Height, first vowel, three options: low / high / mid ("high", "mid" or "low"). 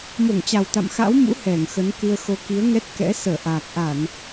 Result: mid